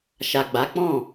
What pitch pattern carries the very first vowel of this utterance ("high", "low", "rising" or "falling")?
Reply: low